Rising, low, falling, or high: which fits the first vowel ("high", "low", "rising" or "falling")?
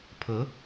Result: rising